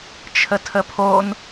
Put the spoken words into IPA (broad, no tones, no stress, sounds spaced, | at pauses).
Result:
t͡ʃʰ ə tʰ ə pʰ o n